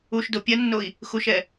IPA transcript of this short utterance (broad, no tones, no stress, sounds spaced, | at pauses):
u ʃ d o pʲ ɐ nː o i̯ | x u ʃ ɛ